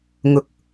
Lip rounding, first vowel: rounded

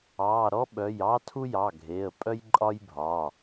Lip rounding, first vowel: unrounded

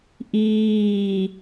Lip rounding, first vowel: unrounded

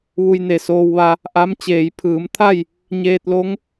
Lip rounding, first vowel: rounded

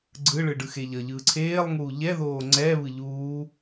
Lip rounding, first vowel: unrounded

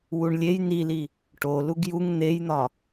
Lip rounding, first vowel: rounded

